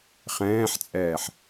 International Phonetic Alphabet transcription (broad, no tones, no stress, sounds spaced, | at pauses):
χ ɛ̃ː ħ t͡sʼ ɛː ħ